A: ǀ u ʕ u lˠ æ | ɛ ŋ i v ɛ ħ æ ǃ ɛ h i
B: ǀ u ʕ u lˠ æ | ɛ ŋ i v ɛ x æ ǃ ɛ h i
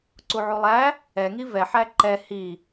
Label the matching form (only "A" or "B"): A